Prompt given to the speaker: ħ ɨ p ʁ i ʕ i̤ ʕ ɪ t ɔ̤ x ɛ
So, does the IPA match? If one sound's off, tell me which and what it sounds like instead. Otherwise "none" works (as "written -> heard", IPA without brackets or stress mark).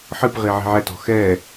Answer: ɪ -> ɛ